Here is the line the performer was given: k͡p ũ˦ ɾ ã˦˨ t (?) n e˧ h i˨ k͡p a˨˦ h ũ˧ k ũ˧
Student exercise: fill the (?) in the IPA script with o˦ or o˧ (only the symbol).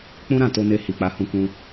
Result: o˧